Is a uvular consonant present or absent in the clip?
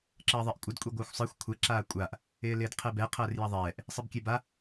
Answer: present